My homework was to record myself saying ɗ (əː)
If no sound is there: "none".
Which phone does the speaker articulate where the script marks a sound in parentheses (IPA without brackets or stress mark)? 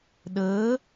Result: əː